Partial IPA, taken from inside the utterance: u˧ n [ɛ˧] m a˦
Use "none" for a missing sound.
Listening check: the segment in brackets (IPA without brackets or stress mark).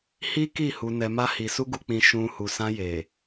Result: ɛ˧